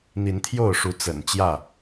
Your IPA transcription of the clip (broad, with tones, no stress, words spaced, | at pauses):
n̪i˨˦nt̪ʰjo˥˨ʊ̯ʂu˨˦ t͡sə̰˨˩nt͡ɕjä˥˨